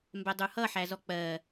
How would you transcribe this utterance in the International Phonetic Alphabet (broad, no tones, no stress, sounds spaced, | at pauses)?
m b ɛ dˤ u h ʌ ħ æ z ɔ k͡p ɜ